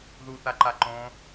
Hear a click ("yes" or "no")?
yes